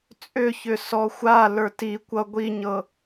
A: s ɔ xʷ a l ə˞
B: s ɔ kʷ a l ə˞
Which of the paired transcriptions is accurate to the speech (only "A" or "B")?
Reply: A